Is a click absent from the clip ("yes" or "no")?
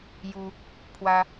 yes